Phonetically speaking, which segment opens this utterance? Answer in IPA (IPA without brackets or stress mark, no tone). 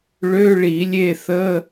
ɭ